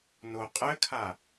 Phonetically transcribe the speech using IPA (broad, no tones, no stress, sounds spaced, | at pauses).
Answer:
n o qʼ ɘ kʰ a